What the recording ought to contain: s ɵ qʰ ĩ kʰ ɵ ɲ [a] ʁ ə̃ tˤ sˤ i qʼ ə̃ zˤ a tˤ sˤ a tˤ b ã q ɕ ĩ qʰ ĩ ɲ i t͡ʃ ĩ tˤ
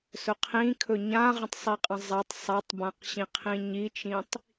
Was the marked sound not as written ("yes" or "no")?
yes